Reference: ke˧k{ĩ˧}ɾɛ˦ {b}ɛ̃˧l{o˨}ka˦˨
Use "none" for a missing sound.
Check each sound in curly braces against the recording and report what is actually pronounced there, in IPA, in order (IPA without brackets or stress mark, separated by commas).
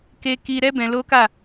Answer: i˧, b, o˦